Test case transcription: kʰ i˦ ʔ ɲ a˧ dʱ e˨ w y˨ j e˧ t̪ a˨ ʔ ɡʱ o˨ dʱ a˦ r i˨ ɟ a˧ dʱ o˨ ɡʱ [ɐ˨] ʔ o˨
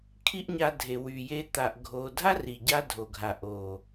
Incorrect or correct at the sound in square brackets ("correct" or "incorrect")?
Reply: incorrect